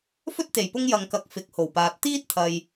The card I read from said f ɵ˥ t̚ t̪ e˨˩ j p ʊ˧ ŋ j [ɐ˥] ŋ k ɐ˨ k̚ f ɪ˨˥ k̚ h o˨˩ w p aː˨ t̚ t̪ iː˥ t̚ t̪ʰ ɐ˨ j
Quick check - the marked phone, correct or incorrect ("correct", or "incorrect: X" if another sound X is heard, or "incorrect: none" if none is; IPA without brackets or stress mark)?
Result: incorrect: ɐ˨